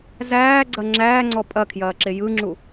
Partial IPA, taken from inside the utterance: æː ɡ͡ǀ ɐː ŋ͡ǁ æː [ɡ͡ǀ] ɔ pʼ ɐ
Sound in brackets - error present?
yes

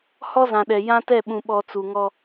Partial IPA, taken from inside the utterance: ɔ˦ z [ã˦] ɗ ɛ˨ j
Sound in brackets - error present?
yes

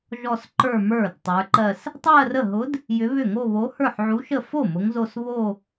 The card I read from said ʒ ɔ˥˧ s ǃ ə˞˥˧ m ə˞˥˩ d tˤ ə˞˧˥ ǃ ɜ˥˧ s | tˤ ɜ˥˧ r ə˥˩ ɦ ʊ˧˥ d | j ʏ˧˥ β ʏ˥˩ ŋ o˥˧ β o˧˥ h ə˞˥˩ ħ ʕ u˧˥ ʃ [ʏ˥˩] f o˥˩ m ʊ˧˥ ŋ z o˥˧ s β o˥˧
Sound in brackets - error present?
yes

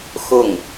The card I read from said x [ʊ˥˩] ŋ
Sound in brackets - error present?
no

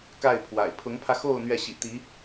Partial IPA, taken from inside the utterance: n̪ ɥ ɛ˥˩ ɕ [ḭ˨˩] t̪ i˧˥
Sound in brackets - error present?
no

